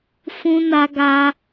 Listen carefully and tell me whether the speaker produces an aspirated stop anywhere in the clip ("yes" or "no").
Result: no